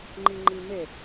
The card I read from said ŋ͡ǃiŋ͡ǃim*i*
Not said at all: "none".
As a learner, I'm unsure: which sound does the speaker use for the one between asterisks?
e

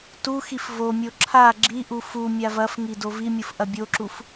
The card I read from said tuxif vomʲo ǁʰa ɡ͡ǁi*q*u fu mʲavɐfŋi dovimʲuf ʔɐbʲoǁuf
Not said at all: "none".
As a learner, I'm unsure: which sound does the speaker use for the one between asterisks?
ʔ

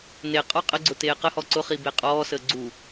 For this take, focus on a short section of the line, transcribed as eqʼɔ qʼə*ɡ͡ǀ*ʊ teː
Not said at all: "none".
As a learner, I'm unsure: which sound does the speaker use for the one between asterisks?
ɡ͡ǀ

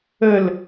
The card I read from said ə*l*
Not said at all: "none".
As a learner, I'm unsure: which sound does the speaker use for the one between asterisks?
l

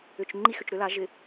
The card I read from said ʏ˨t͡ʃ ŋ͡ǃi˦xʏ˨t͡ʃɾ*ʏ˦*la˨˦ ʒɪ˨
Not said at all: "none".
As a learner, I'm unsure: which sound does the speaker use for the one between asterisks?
ʏ˦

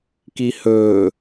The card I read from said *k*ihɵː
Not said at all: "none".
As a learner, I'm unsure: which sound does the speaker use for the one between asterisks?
k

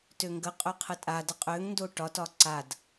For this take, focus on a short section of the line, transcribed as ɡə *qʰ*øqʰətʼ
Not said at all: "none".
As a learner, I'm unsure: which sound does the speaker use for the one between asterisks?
qʼ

